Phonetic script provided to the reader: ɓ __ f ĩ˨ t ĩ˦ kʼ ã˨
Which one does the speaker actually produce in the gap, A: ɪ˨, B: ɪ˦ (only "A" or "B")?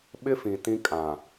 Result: B